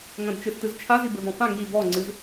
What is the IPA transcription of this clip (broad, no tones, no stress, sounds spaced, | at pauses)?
ŋ ɐ̃ d t͡ʃ ɨ s t ɨ z t͡ʃʰ a z i b ɘ v ɔ̃ f ã ŋ i v ɔ ŋ͡ǀ ɨ z